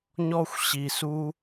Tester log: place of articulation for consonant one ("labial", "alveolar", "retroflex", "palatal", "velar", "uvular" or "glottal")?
palatal